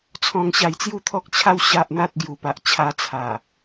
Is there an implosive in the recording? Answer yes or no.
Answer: no